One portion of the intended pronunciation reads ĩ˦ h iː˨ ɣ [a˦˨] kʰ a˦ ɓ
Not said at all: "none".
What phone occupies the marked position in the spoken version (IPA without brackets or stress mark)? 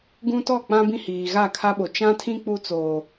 a˦˨